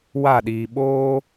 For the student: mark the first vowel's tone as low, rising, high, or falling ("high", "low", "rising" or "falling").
falling